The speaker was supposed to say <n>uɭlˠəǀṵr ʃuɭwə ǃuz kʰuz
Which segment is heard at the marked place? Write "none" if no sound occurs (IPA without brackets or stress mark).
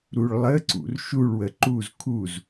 ɾ